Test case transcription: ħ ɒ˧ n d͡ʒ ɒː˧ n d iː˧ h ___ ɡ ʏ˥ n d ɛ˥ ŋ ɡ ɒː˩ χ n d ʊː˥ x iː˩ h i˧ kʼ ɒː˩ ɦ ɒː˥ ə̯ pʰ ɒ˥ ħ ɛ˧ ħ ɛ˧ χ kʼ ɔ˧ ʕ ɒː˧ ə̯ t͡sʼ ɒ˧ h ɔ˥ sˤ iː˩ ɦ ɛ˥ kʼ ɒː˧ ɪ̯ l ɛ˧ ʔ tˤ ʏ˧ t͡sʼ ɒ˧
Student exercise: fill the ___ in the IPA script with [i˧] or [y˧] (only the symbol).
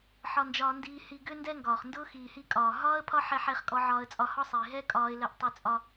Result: i˧